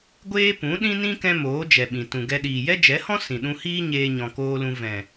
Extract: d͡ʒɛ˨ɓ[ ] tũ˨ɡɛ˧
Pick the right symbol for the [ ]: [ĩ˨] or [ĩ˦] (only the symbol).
ĩ˨